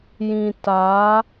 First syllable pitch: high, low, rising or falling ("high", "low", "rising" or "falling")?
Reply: low